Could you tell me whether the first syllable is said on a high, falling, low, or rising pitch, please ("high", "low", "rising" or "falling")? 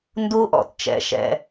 high